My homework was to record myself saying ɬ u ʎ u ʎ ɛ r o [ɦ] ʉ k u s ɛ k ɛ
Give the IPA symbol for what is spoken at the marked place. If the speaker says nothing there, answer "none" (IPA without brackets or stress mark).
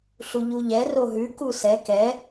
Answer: ɦ